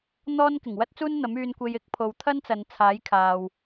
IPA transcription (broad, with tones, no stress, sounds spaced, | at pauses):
n̪ ɔː˥ n k ɪ˨˩ ŋ w ɐ˥ t̚ t͡s uː˥ n n̪ ɐ˨˥ m yː˧ n kʷ e˧ j ɪ˥ k̚ pʰ o˧ w t̪ʰ ɐ˥ n t͡s ɐ˨ n t͡sʰ aː˨˥ j kʰ aː˧ w